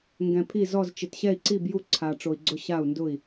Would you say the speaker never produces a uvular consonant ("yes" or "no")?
yes